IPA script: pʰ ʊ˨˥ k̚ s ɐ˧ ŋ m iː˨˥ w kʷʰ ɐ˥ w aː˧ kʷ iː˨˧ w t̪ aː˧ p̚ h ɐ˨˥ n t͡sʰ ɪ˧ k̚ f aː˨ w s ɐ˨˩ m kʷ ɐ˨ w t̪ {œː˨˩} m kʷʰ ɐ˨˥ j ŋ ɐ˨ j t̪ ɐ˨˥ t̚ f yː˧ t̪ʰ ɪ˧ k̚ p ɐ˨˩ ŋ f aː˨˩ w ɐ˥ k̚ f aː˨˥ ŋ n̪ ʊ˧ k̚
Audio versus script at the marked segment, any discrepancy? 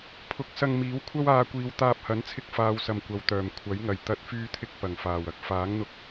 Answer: no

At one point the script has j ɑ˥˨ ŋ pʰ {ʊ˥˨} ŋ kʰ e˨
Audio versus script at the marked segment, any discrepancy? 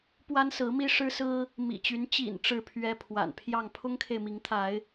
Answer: yes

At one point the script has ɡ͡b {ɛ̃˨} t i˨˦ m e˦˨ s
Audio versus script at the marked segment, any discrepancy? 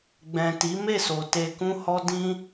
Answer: no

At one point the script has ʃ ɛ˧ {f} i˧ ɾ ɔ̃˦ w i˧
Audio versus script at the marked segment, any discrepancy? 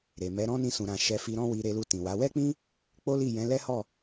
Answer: no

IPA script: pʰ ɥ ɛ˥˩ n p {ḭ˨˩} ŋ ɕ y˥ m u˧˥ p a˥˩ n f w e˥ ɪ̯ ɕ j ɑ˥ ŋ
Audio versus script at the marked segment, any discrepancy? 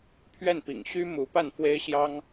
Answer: no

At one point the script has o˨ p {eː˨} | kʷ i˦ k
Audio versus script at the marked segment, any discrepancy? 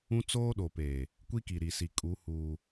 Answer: no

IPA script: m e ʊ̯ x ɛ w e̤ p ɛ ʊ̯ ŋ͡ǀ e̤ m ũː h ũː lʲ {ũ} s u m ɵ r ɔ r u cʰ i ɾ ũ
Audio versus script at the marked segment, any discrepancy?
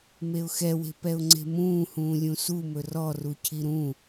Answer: no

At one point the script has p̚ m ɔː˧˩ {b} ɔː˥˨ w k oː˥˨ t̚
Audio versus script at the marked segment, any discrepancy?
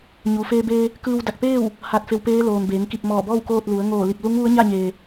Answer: no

